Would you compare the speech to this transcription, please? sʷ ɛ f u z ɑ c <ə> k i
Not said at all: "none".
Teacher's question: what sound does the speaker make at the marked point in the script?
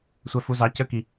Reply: ə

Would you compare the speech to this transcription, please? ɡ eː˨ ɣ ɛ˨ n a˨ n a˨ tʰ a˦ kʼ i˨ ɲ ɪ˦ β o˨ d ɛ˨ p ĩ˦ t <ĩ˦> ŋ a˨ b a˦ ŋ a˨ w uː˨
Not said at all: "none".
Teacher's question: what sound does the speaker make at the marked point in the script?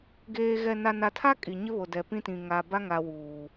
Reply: ĩ˨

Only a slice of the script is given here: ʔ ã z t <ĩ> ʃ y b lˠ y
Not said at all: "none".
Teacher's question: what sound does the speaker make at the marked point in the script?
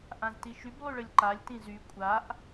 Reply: i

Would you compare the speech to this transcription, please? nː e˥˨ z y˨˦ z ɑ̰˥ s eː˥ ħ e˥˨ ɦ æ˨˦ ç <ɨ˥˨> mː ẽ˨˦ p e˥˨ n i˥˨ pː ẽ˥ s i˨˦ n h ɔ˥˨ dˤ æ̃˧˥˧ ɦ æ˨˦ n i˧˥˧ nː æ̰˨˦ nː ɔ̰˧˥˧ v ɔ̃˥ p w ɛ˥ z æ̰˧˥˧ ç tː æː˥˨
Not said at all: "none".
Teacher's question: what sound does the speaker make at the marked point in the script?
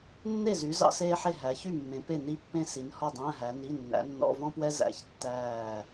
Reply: y˥˨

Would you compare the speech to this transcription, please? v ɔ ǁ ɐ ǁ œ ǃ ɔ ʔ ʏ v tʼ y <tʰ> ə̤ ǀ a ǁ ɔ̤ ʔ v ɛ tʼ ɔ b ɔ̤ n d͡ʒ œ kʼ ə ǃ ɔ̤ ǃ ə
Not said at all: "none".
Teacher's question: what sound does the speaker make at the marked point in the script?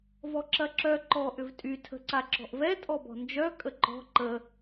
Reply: tʰ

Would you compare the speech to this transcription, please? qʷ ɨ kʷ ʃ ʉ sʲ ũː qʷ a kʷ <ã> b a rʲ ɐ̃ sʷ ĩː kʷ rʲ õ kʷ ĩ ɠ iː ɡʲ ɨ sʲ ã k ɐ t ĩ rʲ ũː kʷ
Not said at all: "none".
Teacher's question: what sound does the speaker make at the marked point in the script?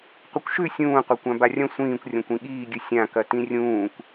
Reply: ã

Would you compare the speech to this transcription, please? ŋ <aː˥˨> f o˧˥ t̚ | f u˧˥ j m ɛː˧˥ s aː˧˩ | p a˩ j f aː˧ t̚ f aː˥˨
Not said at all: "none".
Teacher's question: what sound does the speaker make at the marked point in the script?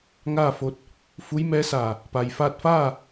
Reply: aː˥˨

